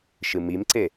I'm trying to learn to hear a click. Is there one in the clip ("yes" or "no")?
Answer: yes